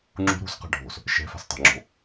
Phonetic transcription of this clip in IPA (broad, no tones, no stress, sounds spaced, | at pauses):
ŋ͡ǁ ṳ ɾ ṳ s q a̤ ɖʱ o̤ s | ʃ ɛ̤ f a̤ s tˤ ɛ̤ ŋ͡ǁ o̤